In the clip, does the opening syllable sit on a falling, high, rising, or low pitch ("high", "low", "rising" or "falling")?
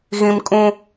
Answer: high